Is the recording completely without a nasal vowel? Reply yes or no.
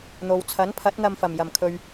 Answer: yes